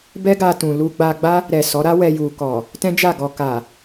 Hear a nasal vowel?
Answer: yes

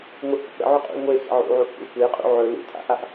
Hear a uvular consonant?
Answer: yes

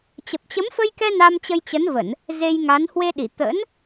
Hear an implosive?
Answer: yes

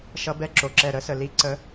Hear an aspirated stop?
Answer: no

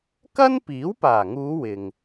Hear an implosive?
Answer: no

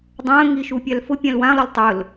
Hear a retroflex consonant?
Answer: no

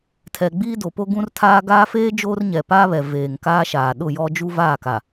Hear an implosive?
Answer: yes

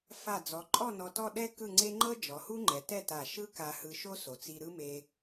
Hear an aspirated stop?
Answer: no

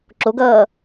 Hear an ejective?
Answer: no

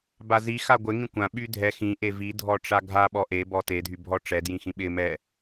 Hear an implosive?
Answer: yes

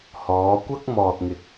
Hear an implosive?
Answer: no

